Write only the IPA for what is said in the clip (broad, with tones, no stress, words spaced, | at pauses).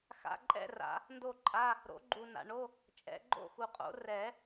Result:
xa̰˧˥˧ǃʼɛ̰˥˧ra̰˨˩˦ | ndo˥˧ǃʼa˧˥˧ | ɾo̰˨˥ɡ͡ǃu˨ na̰˨ɳo˧˥˧ | t͡ʃʼɛ̰˨˩˦ɡ͡ǃo̰˥˧xu˨qʼo̰˨˥ rɛ˨˩˦